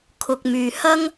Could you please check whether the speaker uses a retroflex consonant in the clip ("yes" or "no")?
no